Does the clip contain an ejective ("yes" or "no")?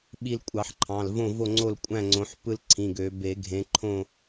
yes